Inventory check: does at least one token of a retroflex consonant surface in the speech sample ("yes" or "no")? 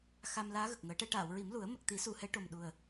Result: yes